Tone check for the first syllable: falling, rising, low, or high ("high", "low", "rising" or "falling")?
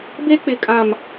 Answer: high